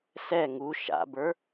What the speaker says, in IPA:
s ɛ ŋ u ʃ a̰ b ə˞

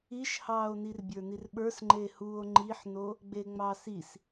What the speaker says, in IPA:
i ʃ h ɑː o̯ n i r bʲ ə˞ n i r ɓ ə˞ s ŋ͡ǃ e h u o̯ ŋ͡ǃ i ħ n o | ɡ͡b e ŋ͡m ɑ s i s

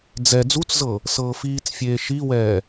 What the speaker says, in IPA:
d͡z ɛ d͡z u t͡s z ɤ | s ɤː f iː t͡s fʲ eː ʃ i w ɛː

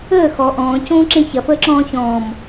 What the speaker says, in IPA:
əː x ɔ ʔ ɔ̃ː c õː ǁ ẽ ç ɐ f əː ǁ ɔ̃ː ç ɔ̃ː m

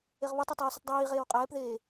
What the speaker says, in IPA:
e ʁ β ʌ tˤ i tˤ oː s ɯ tˤ dˤ iː ʁ eː w qʼ ɛː p ð eː

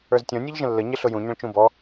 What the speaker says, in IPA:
ə˞ z tʲ ɔ̃ nʲ ʌ ʎ ʒ ə̃ lː ə ɲ ɪ ɬ ʊ j ũ ɲ ə̃ ɭ t͡ʃ ũ b ɔ

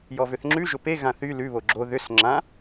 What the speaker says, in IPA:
j ɔ v ʏ θ ŋ͡ǁ ʉ ʒ ʊ p e ɣ ã θ y l ʉ β o ɡ͡ǁ o ð ʏ s ŋ͡ǁ ã

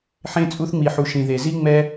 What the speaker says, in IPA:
ħ ẽ˧ t͡sʼ u˧ θ ŋ͡m i˨ ħ u˨ ʃ ĩ˨ ð e˨ z i˦ ŋ͡m ɛ˦

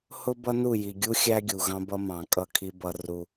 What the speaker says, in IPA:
h ʊ˦ b ʌ˦ n u˦˨ j i˨ ɡʲ u˦ xʲ æ˦ ɡʲ u˨ ɣ ɑ̃˦ b ʌ˦ m ɑ̃˨ kʼ ʌ˦˨ kʰ i˦ b ʌ˦ r u˦

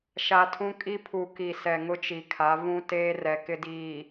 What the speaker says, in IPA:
ʃ a˨ tʰ ũ˦ kʼ i˦ pʰ u˨ k i˨ s ɛ˨ ŋ ʊ˦ t͡ʃ i˨ kʰ a˨˦ v ũ˦ t eː˦ r ɛ˨ k ɪ˦ d iː˨

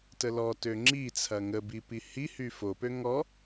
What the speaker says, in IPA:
t ə l ɔ t ø ŋ͡ǁ i t͡sʰ ɐ ŋ ə b i p i h i h y f o p ø ŋ ɔ

